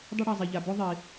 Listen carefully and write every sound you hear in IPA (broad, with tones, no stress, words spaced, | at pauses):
dˤɵ˦ɽa˩zˤe˩ʎa˩ bɵ˥ ðˤi˩